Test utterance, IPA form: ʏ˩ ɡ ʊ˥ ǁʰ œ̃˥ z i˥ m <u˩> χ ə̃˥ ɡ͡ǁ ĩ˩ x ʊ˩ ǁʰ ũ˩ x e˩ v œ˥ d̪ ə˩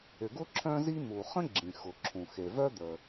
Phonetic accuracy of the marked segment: correct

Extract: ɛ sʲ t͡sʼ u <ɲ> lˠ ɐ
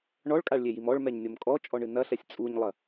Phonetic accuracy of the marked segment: correct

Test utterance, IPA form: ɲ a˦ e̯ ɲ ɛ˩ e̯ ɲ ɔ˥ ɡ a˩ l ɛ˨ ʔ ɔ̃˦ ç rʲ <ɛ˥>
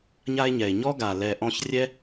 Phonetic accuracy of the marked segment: correct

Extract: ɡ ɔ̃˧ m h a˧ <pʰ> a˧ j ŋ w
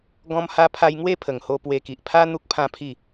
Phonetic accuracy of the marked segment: correct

